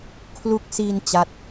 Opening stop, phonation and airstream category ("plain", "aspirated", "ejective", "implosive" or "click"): aspirated